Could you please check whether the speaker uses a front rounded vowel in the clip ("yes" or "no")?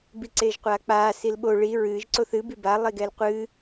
no